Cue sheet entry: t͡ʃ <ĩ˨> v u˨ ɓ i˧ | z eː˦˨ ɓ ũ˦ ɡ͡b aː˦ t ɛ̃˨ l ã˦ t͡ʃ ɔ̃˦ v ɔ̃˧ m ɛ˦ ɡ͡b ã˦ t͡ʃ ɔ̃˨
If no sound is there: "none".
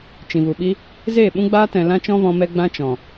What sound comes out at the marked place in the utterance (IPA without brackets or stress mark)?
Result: ĩ˨